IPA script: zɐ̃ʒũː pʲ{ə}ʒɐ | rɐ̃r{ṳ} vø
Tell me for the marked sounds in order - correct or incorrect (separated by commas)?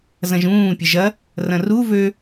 correct, incorrect